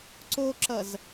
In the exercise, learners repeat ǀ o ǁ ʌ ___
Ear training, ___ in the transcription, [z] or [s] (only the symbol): z